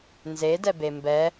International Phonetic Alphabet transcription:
n z e d ɛ b e m b ɛ

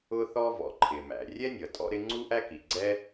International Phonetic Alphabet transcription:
ʊ˥ θ ɔ˥ v ɔ̰˩ ǃʰ ɪː˩ m æ̰˩ rʲ ɛ˥ nʲ ʌ˩ tʼ ɔ̰˥ ɾ ɪ˥ ŋ͡ǀ u˥ ʔ æ˥ k i˩ ɡ͡ǀ ɛ˥

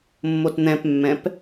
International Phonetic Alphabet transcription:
mː o t n̪ ɛ̃ p mː ɛ̃ p

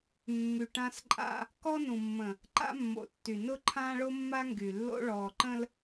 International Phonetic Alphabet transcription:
mː y˨ ʈ ã˦ s ǃʼ a̰˦ | k ɔ˦ n ũ˨ mː ə̃˨ | ǃ a̰˦ mː o̰˨ tː y˨ n ʊ˦ ǃʰ ãː˦ ɭ o˦ mː a˦ ŋ ɡ y˨ lː o̰˦ ɭ ɔː˨ ǃ ə̃˦ l

